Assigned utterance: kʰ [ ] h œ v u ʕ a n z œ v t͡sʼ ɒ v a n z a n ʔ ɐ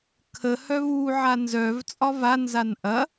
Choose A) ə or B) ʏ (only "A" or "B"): A